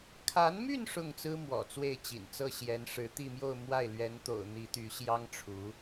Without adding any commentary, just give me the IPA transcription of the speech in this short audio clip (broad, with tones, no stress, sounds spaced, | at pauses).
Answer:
kʰ a˧˥ n m y˥˧ n ʂ ʊ˥˩ ŋ t͡s ɹ̩˥ m w ɔ̰˨˩ t͡s w e˥˩ ɪ̯ t͡ɕ ḭ˨˩ n t͡s ɤ˥˩ ɕ j ɛ˧˥ n ʂ ɻ̩˧˥ t̪ i˥˧ m j o˥˧ ʊ̯ m w a˥˩ ɪ̯ l ɥ ɛ˧˥ n t̪ o̰˨˩ ʊ̯ n̪ i˧˥ t̪ y˧˥ ɕ j ɑ˥ ŋ ʈ͡ʂʰ u˧˥